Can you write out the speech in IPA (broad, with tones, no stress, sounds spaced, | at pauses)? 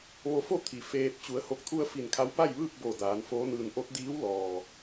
ʋ o˧ f o˥˨ t̪ʰ i˩ f eː˧ t̚ t͡ɕ u˩˧ ə̯ h o˧˩ k̚ t̪ʰ u˧ ə̯ f i˧˩ n kʰ a˧˥ w p a˥˨ j ʋ ɯː˥˨ k̚ b o˧˩ d aː˩˧ n f oː˧˥ n ɯː˧ n ʔ o˧˥ t̚ d iː˧˥ w l ɔː˩